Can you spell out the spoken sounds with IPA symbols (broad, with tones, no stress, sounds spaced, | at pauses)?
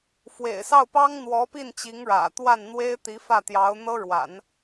f w ḛ˨˩ ɪ̯ s ɑ˥˩ ʊ̯ p ɑ˥ ŋ n̪ w ɔ˧˥ p i˥˩ n t͡ɕ i˧˥ ŋ ɻ ä̰˨˩ t̪ w a˥˩ n n̪ w e˥ ɪ̯ t̪ i˧˥ f ä˥˩ t̪ j ɑ˧˥ ʊ̯ n̪ ɤ˥ ɻ w a̰˨˩˦ n